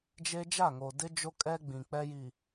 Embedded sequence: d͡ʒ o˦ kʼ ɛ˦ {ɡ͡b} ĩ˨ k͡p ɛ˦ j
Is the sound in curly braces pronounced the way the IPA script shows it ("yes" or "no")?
yes